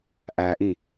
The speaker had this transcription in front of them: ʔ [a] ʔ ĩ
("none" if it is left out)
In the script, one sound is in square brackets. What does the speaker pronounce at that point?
æ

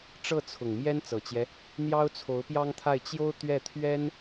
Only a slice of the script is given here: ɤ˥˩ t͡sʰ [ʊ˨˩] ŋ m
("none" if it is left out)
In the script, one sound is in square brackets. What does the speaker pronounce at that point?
ʊ˨˩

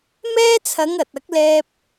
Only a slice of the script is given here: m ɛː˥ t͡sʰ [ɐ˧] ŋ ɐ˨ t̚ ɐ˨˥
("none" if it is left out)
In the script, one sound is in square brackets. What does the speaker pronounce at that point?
ɐ˨˧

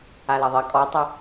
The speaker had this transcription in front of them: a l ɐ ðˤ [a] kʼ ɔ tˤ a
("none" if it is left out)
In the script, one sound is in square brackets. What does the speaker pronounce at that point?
ɐ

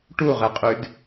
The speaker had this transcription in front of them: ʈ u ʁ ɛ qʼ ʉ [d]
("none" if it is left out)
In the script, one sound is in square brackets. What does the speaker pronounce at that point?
d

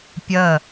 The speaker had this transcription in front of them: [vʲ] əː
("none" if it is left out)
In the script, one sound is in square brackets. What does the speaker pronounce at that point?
pʲ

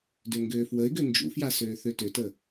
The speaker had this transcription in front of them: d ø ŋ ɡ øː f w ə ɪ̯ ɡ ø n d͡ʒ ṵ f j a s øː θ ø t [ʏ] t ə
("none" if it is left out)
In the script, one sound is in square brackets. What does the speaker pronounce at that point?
ʏ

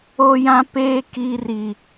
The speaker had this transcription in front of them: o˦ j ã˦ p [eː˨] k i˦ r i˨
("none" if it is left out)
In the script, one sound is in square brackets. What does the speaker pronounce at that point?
eː˦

